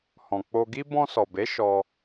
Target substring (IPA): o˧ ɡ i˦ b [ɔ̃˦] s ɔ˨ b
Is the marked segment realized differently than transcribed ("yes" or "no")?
yes